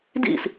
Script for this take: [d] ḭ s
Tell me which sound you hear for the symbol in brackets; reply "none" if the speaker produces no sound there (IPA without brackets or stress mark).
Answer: d